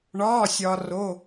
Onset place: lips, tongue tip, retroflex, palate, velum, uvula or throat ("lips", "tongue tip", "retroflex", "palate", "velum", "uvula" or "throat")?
retroflex